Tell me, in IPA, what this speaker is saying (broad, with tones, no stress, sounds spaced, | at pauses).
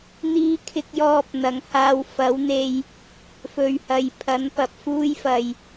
n̪ iː˧ kʰ ɪ˧ k̚ j ɔː˧ p̚ n̪ ɐ˨˥ ŋ h aː˧ w f ɐ˨˥ w n̪ e˧ j | f ɵ˨ ɥ h ɐ˨ j pʰ ɐ˨˥ n p ɐ˨ p̚ f uː˥ j f ɐ˧ j